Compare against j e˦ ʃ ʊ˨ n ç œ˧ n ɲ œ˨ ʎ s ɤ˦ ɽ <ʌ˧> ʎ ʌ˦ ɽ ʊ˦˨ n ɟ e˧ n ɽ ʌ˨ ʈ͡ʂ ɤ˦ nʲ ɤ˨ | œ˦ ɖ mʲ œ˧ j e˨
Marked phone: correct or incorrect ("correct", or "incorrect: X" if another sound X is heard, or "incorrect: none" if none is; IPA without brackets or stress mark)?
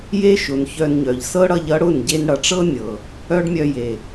correct